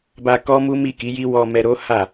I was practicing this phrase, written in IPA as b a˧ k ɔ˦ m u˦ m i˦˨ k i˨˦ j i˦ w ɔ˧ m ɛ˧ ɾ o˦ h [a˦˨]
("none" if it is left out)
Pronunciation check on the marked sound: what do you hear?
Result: a˦˨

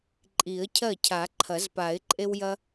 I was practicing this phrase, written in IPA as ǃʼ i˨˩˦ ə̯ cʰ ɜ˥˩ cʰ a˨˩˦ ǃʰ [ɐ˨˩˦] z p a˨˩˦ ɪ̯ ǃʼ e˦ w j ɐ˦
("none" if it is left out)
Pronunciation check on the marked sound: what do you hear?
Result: ɐ˨˩˦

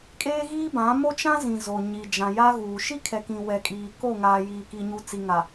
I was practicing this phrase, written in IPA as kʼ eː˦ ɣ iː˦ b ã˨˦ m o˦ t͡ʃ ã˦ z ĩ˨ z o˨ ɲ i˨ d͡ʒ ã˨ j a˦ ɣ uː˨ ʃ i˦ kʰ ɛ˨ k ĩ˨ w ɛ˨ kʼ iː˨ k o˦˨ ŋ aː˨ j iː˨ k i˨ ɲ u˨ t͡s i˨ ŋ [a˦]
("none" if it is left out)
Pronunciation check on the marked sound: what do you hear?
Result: a˨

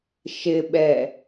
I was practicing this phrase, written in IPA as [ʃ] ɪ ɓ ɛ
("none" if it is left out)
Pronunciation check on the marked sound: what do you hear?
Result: ʃ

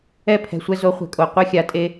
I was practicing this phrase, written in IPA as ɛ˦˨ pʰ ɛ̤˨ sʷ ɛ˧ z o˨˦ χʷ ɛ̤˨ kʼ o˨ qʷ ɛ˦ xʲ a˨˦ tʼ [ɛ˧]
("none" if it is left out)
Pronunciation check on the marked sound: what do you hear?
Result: e˧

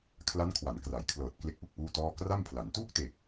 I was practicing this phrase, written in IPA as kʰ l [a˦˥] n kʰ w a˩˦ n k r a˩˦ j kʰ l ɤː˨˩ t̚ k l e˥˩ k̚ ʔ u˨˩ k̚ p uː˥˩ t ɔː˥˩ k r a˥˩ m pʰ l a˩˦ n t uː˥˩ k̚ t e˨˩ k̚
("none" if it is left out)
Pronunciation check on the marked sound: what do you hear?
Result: a˦˥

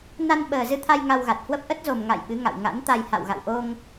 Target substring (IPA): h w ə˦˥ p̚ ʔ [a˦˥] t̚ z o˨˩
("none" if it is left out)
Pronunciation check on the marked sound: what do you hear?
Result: ə˦˥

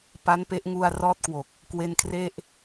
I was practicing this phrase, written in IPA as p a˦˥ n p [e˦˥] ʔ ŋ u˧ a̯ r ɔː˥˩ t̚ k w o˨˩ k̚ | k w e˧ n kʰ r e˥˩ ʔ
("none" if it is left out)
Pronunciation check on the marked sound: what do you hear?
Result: e˦˥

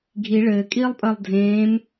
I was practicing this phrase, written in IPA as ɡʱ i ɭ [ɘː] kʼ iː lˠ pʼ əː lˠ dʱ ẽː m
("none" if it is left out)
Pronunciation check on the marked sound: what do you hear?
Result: ɘː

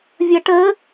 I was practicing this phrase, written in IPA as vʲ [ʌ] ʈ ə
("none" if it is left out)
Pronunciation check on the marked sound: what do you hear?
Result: ʌ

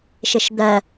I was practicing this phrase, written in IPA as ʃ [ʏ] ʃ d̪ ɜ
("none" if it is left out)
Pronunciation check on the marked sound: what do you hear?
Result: ɪ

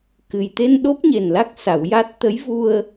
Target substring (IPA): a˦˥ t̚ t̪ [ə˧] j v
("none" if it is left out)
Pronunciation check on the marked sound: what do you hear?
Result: ə˧˥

